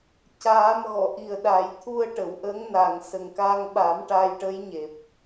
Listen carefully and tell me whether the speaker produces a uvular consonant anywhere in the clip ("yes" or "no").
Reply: no